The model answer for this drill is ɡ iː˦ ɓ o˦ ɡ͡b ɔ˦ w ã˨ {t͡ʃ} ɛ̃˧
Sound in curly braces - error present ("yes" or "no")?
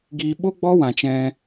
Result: no